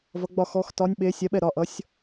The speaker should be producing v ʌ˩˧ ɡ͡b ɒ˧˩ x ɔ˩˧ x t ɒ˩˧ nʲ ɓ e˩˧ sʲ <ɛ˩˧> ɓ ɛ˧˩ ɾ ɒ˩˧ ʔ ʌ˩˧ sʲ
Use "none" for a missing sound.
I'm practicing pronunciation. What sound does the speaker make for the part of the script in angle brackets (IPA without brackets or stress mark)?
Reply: ɛ˩˧